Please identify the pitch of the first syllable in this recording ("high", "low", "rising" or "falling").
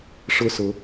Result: high